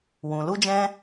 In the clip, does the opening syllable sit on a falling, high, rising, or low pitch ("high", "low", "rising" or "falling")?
low